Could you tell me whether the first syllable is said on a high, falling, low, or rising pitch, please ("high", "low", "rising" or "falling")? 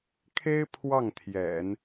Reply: high